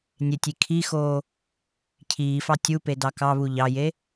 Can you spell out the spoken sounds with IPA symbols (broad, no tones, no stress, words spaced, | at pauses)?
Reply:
nʲetʲi kʰixoː | cʰiːfɑ tʲupe dɑkɑβu ʎɑje